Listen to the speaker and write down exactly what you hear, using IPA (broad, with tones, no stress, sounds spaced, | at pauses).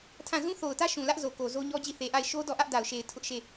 tʰ ã˦˨ z ũ˦ θ o˨ ʊ̯ t ä˦ ʃ ũ˨ l ä˦ ʔ z o˨ k o˨ z o˦ ɲ ɔ˦ d͡ʑ i˦˨ θ e˨ ʔ a˦˨ ɪ̯ ʃ o˦ d ɔ˦˨ ʔ ä˦ ʔ d a˨ ʊ̯ ʃ e˨ ɪ̯ tʰ ʊ˦ ʔ ʃ e˦˨